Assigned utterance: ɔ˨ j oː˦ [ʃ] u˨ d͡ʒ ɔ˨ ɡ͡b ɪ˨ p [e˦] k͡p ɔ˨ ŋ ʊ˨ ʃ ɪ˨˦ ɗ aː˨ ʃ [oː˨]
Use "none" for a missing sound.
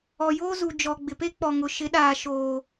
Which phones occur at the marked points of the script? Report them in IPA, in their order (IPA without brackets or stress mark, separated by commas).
z, e˦, oː˨